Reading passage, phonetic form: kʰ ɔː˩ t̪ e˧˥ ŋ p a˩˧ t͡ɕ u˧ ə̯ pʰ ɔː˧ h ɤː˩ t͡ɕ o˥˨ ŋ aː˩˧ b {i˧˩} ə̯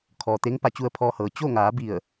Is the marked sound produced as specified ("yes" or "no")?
yes